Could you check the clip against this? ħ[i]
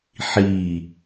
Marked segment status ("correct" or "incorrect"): correct